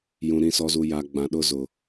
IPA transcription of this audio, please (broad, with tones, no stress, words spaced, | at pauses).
jũ˨ ɾĩ˨sɔ˨zu˨ ja˨ ɡ͡bã˨ɗʊ˦zʊ˨